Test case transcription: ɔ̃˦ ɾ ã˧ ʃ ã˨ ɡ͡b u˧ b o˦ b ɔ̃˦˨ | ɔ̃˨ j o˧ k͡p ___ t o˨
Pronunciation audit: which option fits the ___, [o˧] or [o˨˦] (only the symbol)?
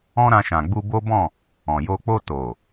o˧